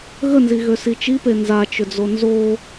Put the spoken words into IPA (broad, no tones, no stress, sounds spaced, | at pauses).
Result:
ɣ ə n z i ɣ ø s i t͡ʃ i p e n z a t͡ʃ ʏ d͡z o n z o